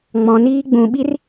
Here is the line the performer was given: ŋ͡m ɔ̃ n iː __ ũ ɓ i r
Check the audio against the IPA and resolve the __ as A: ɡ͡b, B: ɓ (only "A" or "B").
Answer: A